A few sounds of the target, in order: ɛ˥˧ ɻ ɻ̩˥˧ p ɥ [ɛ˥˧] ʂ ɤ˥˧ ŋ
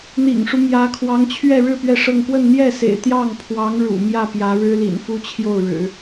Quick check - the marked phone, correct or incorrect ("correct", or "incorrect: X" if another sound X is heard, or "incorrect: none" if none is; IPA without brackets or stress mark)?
correct